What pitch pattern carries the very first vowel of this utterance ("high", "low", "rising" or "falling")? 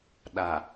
low